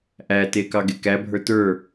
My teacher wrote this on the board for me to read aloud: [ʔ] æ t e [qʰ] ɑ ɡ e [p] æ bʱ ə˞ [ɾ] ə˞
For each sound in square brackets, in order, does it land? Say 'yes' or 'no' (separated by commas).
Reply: yes, no, no, no